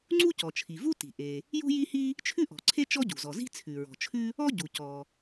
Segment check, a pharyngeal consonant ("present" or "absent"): absent